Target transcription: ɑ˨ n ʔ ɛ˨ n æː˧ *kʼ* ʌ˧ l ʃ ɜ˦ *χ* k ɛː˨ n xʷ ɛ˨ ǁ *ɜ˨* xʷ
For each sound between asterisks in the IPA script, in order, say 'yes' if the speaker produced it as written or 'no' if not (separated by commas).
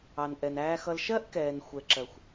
no, no, yes